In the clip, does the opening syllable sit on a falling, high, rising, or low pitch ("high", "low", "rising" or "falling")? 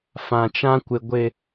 low